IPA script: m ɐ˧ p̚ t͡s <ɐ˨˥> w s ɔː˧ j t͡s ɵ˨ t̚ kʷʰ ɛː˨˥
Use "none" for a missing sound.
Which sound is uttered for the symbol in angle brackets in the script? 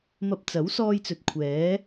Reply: ɐ˨˥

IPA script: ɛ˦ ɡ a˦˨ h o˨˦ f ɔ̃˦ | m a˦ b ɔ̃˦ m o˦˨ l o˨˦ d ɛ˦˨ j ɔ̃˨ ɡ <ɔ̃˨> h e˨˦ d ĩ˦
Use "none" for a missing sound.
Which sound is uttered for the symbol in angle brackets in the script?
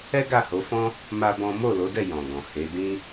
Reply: ɔ̃˨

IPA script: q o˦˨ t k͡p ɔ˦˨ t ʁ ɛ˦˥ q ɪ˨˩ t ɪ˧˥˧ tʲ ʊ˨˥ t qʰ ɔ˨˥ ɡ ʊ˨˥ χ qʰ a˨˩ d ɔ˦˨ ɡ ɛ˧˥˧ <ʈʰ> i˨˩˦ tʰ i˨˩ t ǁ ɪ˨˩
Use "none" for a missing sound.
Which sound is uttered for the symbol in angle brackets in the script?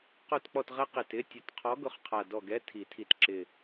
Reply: tʰ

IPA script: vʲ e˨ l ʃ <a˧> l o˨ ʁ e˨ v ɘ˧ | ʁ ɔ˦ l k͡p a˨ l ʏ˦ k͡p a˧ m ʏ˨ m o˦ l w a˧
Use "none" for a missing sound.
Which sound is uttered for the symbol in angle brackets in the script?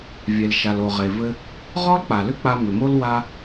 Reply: a˨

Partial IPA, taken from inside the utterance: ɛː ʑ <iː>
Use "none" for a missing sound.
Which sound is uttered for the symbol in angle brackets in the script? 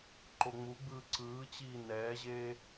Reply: eː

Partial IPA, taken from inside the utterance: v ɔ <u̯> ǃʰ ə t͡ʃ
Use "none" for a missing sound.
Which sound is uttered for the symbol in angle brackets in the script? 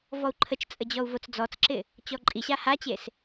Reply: u̯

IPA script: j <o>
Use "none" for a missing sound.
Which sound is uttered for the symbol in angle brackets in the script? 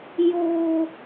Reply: o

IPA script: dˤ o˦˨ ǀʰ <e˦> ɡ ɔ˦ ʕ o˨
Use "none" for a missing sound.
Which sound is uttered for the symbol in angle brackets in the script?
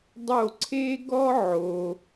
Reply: e˦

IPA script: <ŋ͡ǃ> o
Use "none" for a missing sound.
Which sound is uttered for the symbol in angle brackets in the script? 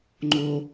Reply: ŋ͡ǃ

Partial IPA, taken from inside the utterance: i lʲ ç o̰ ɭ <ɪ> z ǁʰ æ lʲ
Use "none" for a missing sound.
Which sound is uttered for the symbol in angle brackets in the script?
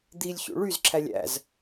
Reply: y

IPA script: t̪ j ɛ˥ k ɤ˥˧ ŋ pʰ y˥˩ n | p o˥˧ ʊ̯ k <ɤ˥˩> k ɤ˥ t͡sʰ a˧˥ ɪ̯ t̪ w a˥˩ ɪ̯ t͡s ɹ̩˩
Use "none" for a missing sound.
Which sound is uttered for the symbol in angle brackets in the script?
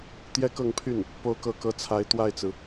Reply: ɤ˥˩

